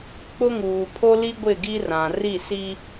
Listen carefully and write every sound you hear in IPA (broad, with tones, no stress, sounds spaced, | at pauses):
k͡p ʊ˦ ŋ uː˨ pʰ o˦ l i˦ ɡʷ ɪ˦˨ ɡ i˦ r ã˨ r i˦˨ s i˦